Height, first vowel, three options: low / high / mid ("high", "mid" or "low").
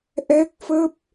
mid